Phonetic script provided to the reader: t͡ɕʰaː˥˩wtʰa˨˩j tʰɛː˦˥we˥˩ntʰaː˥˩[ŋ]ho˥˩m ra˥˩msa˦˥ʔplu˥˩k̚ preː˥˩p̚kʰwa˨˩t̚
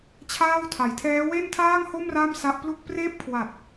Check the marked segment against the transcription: correct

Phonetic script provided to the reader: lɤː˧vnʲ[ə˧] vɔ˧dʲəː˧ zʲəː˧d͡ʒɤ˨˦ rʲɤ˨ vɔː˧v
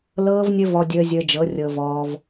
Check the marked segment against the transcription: correct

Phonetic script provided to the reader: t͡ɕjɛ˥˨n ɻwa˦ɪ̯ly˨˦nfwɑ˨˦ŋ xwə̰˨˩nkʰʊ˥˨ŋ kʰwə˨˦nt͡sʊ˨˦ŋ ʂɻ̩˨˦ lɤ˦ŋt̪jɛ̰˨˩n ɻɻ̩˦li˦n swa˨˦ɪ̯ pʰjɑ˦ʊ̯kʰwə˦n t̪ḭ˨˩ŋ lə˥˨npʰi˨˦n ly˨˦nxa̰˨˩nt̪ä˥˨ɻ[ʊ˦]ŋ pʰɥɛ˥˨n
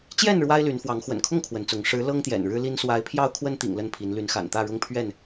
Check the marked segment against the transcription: correct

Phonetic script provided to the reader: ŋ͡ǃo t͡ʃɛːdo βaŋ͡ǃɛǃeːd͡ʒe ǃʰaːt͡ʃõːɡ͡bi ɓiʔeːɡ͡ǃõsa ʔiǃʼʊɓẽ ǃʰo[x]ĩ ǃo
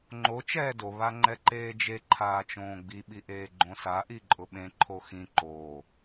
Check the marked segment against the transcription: correct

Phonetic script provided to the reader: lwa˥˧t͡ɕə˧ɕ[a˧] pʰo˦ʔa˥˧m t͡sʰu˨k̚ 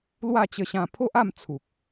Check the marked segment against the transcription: incorrect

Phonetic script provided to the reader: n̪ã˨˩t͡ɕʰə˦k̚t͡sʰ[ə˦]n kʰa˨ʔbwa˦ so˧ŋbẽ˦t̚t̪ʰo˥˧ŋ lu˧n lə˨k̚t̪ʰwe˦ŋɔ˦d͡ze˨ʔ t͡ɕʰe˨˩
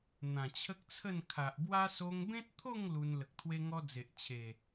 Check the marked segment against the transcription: incorrect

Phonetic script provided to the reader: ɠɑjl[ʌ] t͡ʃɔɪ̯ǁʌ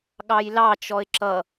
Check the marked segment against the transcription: incorrect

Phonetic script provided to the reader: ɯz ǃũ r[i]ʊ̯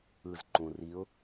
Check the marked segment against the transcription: correct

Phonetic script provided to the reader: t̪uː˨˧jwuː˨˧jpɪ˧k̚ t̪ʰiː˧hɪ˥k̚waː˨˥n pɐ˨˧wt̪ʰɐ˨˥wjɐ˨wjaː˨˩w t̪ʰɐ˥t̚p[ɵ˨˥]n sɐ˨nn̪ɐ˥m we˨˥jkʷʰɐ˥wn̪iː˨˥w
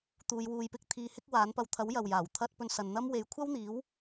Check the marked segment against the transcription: incorrect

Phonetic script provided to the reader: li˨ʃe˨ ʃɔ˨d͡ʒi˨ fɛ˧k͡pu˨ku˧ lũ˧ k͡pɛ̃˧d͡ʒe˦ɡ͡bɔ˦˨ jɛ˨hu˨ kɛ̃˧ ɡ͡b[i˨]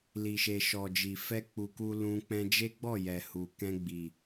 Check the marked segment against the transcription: correct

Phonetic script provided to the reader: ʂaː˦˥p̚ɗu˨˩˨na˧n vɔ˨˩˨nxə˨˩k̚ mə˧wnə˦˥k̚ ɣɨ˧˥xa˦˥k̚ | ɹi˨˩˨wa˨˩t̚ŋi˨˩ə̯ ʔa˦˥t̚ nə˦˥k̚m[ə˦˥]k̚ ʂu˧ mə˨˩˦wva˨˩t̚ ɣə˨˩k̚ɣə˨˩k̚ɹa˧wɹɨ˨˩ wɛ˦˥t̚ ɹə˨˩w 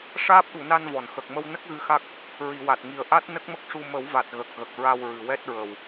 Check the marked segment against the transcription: correct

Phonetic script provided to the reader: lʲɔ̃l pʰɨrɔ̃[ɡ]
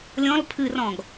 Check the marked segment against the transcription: correct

